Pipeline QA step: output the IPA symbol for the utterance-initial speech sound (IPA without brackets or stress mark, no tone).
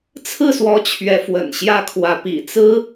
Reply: t͡sʰ